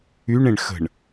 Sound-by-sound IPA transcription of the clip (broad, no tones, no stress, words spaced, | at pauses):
yɳẽɳ xə̤ɳ